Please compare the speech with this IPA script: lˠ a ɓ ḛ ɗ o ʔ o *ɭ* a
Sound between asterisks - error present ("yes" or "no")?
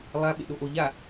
yes